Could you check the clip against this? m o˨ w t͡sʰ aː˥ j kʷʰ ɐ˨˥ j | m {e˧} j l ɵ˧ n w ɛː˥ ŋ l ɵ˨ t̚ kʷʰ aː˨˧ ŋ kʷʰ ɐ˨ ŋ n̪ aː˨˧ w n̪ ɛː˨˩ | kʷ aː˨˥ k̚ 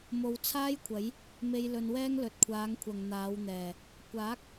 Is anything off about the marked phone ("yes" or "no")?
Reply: no